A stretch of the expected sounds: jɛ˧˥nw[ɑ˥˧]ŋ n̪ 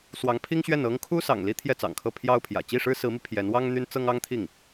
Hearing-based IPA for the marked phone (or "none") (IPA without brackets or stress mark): ɑ˥